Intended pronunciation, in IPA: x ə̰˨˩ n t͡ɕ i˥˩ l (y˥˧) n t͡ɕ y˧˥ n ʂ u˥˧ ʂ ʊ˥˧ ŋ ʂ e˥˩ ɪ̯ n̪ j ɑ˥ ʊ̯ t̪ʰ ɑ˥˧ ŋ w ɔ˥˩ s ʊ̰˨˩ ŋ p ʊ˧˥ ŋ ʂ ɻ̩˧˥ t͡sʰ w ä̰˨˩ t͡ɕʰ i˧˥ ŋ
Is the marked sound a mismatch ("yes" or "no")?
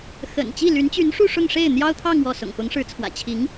yes